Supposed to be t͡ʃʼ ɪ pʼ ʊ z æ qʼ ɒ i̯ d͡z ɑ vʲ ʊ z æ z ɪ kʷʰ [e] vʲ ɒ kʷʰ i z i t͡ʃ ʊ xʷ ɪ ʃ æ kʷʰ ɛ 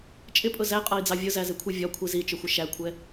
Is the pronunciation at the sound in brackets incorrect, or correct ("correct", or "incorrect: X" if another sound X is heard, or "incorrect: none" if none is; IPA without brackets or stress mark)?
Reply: incorrect: i